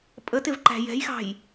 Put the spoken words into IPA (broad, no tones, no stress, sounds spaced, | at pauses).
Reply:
pʼ ə t ɪ v ǃ æ̤ j ɛ̤ j x ɑ̤ j